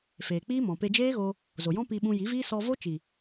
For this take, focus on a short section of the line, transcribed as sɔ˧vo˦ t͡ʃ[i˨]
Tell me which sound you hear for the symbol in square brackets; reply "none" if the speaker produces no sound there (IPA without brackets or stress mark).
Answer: i˨